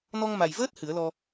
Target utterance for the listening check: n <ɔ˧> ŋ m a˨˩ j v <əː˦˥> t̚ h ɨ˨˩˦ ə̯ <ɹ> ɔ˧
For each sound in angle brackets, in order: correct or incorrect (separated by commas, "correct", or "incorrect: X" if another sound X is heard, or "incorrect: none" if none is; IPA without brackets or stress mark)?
correct, correct, incorrect: l